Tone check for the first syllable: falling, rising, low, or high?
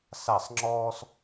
falling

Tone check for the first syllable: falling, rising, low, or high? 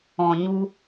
low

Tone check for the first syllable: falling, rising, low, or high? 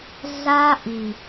high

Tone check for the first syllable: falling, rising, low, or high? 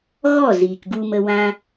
falling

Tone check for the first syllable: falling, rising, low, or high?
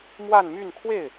falling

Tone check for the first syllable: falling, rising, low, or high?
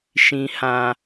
low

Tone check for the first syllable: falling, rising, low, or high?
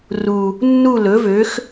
low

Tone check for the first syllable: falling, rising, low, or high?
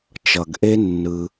low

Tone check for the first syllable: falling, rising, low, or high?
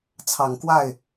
low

